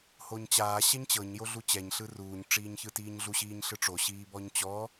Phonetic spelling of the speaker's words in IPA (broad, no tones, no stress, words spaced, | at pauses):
hoɲt͡ɕaː ɕɛɲt͡ɕɤɲ joɮut͡ɕɛɲ ɬɯruːɲ ʈ͡ʂiːɲçɯtiːɲɮu ɕiːɲɬɯʈ͡ʂo ɕiːbɔɲt͡ɕɔ